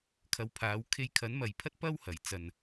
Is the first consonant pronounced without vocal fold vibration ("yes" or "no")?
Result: yes